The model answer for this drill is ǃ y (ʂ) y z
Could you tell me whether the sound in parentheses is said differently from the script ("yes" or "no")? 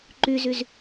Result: yes